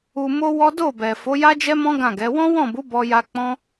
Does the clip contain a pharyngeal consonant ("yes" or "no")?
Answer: no